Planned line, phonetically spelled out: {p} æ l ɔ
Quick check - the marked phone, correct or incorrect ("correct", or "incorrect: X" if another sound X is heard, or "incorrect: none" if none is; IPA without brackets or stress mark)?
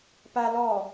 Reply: correct